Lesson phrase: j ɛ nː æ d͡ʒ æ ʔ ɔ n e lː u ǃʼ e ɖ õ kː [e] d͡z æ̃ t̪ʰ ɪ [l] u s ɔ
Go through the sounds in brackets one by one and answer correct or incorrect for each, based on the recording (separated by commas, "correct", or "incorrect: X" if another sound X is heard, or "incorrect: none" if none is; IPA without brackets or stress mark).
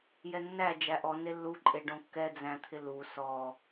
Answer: incorrect: ɛ, correct